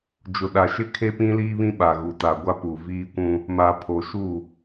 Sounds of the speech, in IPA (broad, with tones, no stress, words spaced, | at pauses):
d͡ʒʊ˨ɗa˨ʃɪ˦kʰe˦ pĩ˦liː˦βĩ˦ ɓa˨ɣu˨ta˨ ɡʷa˦ pu˨ viː˦kʷũ˦ | ma˨ pʰo˨ʃu˦˨